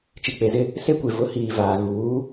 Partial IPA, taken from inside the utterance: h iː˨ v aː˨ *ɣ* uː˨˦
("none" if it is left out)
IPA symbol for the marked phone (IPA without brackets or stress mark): ɣ